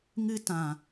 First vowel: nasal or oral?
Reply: oral